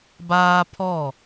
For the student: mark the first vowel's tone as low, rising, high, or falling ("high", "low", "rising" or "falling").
high